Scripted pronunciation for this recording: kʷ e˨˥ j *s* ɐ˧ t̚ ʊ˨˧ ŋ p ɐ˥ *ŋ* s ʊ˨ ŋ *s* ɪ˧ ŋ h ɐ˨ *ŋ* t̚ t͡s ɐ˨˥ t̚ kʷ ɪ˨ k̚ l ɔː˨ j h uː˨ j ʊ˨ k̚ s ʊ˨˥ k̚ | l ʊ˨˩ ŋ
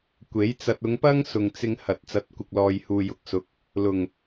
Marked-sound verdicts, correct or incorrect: incorrect: t͡s, correct, incorrect: t͡s, incorrect: none

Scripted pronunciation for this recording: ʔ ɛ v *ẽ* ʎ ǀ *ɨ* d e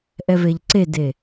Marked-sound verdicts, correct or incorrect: incorrect: e, incorrect: e

